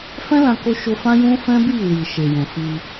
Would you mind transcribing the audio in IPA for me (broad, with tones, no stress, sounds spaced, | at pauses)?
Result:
f ɛ̃˦ l ã˧ k o˦ ʃ o˧ f ã˦ j ũ˦ f ɛ̃˦ b i˦˨ w i˨ ʃ e˨ j ɛ̃˨ f i˧